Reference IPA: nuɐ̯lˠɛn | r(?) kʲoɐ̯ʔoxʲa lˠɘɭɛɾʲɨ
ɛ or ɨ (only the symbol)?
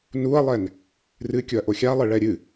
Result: ɨ